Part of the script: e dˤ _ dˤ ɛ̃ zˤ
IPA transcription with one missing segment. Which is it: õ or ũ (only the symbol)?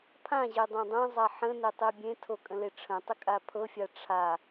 õ